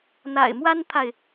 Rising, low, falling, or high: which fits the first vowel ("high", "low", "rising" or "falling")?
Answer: low